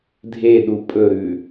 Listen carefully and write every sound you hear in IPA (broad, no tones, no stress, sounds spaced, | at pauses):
dʱ e ɗ u pʼ ɵ ɾ ʉ